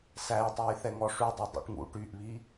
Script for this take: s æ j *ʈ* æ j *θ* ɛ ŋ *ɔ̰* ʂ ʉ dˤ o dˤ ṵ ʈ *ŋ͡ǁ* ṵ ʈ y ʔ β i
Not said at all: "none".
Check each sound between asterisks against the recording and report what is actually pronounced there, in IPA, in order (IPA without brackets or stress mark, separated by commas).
tˤ, θ, ɔ, ŋ